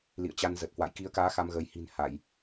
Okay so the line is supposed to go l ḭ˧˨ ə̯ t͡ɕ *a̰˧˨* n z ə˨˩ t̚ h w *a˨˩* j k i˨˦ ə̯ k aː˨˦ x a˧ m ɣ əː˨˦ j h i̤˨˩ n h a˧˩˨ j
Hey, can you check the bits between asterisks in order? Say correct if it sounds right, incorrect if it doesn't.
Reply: incorrect, incorrect

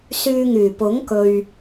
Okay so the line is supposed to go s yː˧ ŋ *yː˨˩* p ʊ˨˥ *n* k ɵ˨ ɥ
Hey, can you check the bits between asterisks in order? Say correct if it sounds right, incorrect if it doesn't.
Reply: correct, incorrect

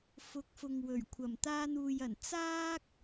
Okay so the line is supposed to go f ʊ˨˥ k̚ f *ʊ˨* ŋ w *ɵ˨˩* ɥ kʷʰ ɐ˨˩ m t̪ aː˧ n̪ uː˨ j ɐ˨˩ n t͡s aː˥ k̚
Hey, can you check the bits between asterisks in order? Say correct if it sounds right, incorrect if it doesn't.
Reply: correct, correct

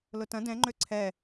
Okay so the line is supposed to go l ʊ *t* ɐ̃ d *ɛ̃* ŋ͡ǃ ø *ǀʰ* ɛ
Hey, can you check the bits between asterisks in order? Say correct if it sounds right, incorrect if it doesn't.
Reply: correct, correct, correct

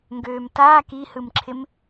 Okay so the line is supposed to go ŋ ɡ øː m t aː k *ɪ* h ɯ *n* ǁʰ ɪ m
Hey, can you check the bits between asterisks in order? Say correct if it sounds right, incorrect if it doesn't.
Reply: incorrect, incorrect

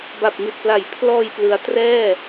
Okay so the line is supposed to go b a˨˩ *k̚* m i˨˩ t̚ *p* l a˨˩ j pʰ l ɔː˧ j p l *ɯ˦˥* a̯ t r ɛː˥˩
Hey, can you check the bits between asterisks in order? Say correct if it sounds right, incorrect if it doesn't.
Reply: incorrect, correct, correct

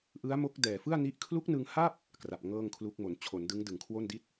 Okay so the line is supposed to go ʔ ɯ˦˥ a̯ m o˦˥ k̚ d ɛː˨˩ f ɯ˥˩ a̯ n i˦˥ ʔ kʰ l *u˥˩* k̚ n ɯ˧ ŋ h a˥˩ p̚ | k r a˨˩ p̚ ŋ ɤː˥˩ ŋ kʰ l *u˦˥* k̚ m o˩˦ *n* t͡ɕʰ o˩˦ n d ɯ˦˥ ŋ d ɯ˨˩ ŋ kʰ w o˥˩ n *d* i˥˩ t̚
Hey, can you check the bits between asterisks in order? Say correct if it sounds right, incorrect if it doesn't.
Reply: incorrect, correct, correct, correct

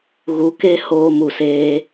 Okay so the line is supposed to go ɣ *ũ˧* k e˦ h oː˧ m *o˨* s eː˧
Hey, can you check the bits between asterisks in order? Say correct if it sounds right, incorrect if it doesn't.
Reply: incorrect, incorrect

